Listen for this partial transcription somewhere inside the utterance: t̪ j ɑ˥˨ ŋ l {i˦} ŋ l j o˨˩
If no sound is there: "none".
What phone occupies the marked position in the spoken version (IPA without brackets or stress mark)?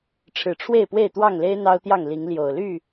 i˨˦